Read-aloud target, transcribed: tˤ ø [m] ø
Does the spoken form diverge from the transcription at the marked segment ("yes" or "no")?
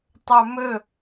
no